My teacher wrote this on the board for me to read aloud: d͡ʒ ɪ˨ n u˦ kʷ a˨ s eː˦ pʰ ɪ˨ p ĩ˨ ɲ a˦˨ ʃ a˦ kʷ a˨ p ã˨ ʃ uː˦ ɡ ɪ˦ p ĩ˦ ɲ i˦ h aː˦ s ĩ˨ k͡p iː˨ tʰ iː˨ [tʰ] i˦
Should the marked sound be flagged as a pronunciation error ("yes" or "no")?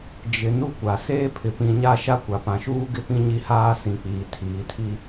no